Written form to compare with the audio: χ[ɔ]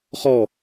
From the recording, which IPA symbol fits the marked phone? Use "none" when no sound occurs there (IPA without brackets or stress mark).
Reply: ɔ